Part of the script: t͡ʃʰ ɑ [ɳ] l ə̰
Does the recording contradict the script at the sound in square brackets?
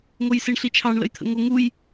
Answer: no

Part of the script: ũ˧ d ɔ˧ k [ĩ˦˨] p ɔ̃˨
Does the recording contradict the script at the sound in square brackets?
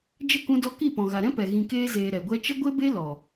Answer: yes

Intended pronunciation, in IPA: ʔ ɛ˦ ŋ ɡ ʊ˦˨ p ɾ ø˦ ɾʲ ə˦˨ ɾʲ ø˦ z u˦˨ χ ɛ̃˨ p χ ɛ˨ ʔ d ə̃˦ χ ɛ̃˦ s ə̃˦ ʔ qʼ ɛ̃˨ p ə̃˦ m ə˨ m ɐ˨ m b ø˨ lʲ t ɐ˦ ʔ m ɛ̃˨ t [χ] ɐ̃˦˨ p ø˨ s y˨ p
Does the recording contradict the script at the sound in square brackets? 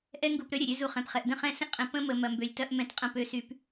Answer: yes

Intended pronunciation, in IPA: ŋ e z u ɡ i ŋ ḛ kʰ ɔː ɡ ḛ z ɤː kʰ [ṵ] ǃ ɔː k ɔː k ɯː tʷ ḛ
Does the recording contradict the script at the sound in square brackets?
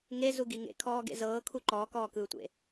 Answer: yes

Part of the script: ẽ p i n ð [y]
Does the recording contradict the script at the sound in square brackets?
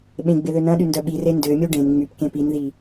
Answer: yes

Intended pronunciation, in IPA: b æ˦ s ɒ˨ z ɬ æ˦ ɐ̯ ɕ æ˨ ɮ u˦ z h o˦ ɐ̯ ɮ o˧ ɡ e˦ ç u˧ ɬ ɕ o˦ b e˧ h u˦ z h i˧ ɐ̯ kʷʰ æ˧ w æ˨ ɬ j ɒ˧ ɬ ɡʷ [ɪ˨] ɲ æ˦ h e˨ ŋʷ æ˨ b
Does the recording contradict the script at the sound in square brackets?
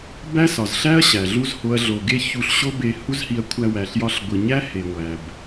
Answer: yes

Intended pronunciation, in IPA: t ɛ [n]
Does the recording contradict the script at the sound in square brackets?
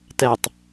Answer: yes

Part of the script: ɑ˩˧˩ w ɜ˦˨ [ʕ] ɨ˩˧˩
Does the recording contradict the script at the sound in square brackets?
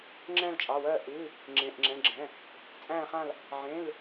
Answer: yes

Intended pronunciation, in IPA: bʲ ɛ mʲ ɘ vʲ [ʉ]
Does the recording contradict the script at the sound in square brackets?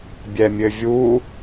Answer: yes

